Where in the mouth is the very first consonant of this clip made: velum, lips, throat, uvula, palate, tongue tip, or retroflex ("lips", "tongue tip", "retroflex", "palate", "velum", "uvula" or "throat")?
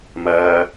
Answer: lips